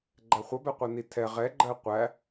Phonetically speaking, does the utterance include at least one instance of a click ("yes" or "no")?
yes